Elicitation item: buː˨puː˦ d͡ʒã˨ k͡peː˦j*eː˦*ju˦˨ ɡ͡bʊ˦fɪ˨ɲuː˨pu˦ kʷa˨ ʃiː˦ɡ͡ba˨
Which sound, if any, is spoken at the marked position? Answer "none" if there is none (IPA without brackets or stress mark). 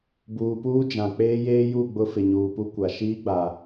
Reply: eː˦